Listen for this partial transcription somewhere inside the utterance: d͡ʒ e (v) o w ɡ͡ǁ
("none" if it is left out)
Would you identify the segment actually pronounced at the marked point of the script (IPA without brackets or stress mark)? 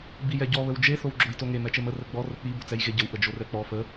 θ